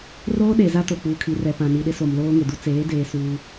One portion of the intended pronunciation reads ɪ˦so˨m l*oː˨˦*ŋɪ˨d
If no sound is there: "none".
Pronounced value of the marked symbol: oː˦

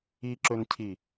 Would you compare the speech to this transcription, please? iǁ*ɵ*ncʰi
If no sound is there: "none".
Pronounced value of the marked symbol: ɵ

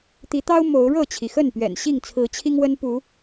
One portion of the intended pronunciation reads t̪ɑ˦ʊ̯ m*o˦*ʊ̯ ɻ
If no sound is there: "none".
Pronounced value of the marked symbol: o˨˦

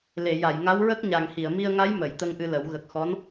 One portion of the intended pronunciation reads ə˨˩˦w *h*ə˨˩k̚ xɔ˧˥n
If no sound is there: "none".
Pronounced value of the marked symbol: ɣ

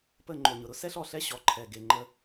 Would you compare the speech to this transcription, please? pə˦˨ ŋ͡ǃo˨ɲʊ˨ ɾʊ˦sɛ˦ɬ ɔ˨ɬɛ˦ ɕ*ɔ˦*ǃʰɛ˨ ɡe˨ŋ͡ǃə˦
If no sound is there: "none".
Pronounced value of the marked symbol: ɔ˨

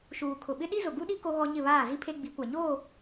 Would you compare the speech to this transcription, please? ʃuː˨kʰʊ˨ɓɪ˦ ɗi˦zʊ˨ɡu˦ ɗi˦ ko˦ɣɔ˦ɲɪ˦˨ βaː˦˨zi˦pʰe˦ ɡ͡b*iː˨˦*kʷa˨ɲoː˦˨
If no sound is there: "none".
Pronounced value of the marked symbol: i˨˦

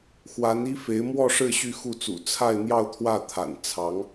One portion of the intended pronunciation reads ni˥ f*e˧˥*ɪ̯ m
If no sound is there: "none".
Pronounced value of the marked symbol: e˧˥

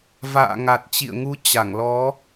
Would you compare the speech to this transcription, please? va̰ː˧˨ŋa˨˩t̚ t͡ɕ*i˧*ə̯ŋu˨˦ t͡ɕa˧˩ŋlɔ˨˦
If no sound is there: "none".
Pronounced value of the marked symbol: ḭ˧˨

